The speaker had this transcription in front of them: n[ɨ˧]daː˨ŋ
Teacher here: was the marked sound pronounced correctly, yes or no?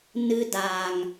yes